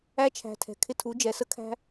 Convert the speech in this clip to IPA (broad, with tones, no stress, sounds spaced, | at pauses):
æ˧ t͡ʃʰ æ̤˨ tʰ ɛ̤˨ kʰ ɪ˧ tʰ u˨˦ d͡ʒ ɛ˨ s ə˧ kʰ æ̤˧